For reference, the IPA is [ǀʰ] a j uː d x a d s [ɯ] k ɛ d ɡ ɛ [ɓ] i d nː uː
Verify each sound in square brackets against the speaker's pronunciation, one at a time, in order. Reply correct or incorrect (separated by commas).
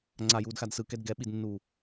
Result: incorrect, correct, correct